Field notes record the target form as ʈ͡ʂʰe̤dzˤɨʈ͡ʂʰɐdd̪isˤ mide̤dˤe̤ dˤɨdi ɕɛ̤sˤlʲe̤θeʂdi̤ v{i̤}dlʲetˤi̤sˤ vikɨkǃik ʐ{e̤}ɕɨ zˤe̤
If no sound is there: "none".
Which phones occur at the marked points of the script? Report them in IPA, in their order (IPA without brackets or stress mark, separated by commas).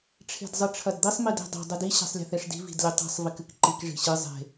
i̤, i̤